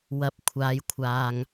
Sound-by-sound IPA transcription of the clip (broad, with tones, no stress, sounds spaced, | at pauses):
w ɐ˨ p̚ kʷʰ aː˨ j kʷʰ aː˨ ŋ